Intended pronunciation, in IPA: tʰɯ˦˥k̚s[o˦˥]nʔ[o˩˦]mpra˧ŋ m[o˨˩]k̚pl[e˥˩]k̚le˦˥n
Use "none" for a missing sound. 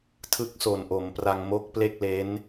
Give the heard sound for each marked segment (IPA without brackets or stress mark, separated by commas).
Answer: o˨˩, o˩˦, o˦˥, e˥˩